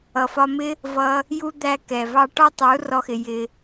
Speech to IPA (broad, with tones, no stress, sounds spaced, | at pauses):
ʌ˨ f ɒ˧ m ɪ˦ | v ʌ˧ | j u˦ d̪ æ˦ k ɛ˨ v ɑ˦ ʈ ɒ˦ tˤ u˨˦ r ɔ˦ x ɪ˧ j ɪ˧